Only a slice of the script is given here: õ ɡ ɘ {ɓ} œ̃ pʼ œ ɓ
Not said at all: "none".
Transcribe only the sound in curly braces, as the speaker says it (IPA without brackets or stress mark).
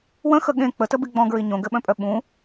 ɓ